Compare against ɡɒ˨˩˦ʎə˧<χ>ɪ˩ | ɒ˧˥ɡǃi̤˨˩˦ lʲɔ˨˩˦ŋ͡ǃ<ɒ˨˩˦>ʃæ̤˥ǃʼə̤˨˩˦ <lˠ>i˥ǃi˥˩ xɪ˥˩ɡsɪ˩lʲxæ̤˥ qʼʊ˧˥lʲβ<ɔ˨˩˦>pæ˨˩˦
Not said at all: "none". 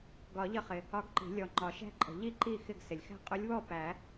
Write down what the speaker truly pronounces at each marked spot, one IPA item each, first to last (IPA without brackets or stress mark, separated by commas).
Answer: χ, ɒ˨˩˦, ʎ, ɔ˥˩